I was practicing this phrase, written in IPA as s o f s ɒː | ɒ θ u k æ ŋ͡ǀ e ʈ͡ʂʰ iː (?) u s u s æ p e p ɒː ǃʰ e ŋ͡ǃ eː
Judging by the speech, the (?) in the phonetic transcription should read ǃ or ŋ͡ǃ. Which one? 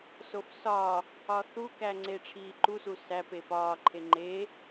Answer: ǃ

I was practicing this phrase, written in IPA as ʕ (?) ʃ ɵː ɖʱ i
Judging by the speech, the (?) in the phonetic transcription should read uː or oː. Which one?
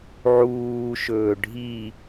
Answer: uː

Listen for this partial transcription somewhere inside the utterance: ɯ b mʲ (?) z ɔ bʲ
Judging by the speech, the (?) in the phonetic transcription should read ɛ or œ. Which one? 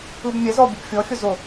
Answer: ɛ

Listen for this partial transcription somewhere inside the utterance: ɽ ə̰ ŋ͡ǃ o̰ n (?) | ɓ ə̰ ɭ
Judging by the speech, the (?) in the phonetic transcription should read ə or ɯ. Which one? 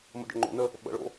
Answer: ə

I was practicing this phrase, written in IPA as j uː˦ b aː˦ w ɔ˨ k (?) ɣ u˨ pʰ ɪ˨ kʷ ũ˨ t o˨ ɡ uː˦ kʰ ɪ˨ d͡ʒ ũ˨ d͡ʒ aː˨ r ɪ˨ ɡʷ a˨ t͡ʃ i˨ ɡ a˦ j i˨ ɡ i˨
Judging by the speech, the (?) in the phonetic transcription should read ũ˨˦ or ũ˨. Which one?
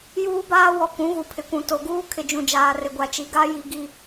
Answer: ũ˨˦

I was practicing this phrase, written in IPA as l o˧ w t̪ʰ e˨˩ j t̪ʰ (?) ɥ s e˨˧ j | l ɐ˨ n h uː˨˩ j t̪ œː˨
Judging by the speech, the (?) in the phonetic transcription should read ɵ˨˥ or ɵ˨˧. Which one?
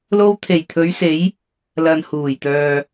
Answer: ɵ˨˧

